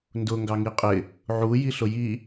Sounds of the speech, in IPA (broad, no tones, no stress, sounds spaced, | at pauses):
n d ʊ ŋ ɡ ɑ ŋ i qʼ ɪ | ʕ u j i ɬ ʊ j i